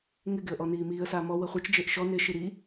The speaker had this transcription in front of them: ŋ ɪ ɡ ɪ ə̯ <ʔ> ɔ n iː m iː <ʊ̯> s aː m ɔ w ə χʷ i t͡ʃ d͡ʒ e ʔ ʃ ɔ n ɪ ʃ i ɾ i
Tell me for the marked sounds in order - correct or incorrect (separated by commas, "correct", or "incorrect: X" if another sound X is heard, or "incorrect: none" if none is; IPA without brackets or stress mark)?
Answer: correct, incorrect: ə̯